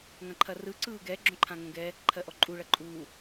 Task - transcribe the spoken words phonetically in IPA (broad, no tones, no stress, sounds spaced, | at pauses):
ŋ ɐ̃ ǃʰ ɐ r ɯ ǀ ɯː ɡ ɛ ɡ͡ǁ õ ǃʰ ã ŋ õ ɡ ɛ | ǃʰ ɜ ʔ ɔ ǃʼ u ɭ ɐ ǃʼ uː